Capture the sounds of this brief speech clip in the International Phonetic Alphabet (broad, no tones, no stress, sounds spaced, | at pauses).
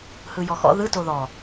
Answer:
h ɯ j ɔ x ɔ̰ ð ɯ t o ð ɔ